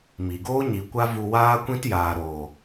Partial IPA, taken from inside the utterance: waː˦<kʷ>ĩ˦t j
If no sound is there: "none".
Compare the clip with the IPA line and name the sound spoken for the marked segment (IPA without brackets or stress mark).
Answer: kʷ